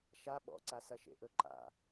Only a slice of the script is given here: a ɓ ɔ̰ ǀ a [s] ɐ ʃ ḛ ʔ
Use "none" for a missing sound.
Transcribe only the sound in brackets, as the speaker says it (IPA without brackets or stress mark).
s